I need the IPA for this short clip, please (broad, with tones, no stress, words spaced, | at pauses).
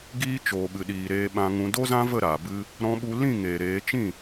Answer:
ɡiː˦t͡ʃoː˨ɓɨ˨ ɗiː˨ɾeː˧ɓã˧ŋũ˧ do˦zã˦və˦˨ ɾa˨bɨ˦ | ɾɔ̃˧ɓu˧lĩ˦˨ ŋeː˨ɾeː˨˦ t͡ʃĩ˦˨